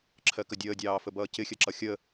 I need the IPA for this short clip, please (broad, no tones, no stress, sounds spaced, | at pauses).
ǁʰ ɜ k ə dʲ əː dʲ ɑː f ə b ʌː c ɪ xʲ ɜ ǁ ʌ xʲ ə